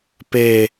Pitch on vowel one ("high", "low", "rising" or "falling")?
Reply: low